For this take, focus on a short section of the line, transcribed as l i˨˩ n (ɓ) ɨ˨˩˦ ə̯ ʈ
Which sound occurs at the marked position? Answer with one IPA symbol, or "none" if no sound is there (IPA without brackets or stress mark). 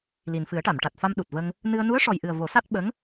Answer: f